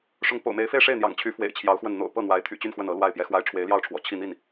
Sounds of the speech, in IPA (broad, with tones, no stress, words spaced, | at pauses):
ʂʊ˧˥ŋpo̰˨˩ʊ̯me˧˥ɪ̯ fe˥˧ɪ̯ʂe˥˩ɪ̯n̪jɑ̰˨˩ŋt͡ɕʰy˧˥ fwḛ˨˩ɪ̯t͡ɕʰjɑ˧˥ʊ̯xwə˥˩n n̪o̰˨˩ʊ̯ pɤ˥˩n̪wa˧˥ɪ̯t̪ʰy̰˨˩t͡ɕy˥˧n xwə˥˩nɤ˧˥ lwa˥˩ɪ̯pjɛ˥xwa˥ɪ̯ ʈ͡ʂʰwe˧˥ɪ̯ljɑ˥˩ʊ̯ʈ͡ʂʰwɔ̰˨˩ t͡ɕʰi˥˧n̪i˥˩n